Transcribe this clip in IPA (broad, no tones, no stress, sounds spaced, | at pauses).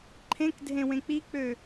ǃʰ ẽ k dʱ ẽ w ẽ k͡p i k͡p ø